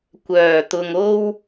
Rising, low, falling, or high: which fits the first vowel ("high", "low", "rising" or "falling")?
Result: low